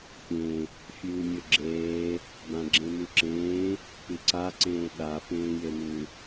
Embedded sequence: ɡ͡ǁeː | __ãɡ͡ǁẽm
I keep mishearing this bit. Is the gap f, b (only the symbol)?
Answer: b